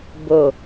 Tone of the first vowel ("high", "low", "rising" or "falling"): low